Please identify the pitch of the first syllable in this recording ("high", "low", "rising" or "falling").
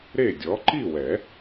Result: falling